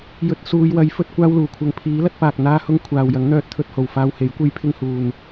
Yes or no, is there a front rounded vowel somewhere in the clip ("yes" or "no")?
yes